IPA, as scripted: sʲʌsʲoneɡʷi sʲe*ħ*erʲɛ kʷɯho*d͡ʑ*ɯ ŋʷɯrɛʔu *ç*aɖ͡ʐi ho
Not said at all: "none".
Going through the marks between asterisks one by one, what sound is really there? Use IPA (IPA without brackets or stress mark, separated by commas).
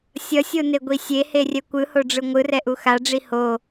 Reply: h, ɖ͡ʐ, x